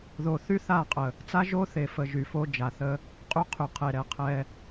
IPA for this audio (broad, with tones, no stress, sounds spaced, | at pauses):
ð o˨ θ y˦ θ a˦˨ qʼ ə˨ | t͡s a˦ ʒ o˦ θ e˨ f ə˨ ʒ y˨ f o˦ d͡ʒ a˨ θ ə˦ | qʼ y˦ qʰ y˨ qʰ e˨ ɾ ɛ˨ qʰ ɛ˦